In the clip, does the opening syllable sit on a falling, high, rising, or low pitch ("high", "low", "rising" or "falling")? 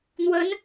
rising